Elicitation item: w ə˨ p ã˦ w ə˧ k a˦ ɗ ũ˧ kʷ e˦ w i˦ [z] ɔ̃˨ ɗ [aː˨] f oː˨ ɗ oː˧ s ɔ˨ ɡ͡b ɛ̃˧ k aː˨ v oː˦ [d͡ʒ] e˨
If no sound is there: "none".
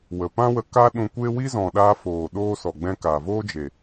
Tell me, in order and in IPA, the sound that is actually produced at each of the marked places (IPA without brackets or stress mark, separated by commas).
z, aː˧, d͡ʒ